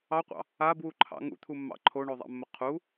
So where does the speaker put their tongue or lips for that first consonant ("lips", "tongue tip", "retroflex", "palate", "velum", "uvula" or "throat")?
uvula